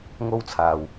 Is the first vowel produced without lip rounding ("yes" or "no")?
no